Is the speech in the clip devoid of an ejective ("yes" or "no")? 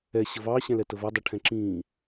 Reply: yes